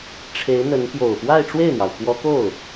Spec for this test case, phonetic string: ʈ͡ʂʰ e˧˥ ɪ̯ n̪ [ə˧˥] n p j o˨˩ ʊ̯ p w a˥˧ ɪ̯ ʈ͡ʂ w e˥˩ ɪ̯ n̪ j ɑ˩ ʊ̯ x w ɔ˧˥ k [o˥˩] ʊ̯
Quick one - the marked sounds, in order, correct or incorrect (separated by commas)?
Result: correct, correct